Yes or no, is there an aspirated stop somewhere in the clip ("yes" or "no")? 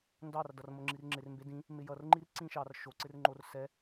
no